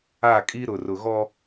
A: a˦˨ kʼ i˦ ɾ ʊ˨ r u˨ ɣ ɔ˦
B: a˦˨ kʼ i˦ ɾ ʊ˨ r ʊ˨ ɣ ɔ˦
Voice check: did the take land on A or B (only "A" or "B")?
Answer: B